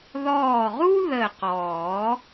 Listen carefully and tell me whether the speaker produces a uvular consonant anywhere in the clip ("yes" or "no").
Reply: yes